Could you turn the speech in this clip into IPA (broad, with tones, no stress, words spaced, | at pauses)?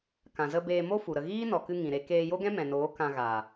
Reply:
kã˨zə˧ beː˧mo˦fu˨ ɾə˧ ɣiː˦nɔ˨kɨ˧ ŋĩ˨ɾe˧ keː˧jo˦ɡɛ̃˦ mɛ̃˨noː˨˦ kã˧ɣaː˨